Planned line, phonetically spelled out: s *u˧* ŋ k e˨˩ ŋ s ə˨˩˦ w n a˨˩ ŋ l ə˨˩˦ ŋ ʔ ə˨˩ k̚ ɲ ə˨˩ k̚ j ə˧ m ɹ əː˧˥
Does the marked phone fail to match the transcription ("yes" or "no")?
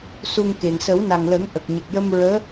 no